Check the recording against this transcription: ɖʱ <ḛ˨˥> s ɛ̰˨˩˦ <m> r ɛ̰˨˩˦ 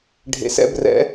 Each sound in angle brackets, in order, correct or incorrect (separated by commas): correct, incorrect